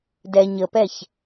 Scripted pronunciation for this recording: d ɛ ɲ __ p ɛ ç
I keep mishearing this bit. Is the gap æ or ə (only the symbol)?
ə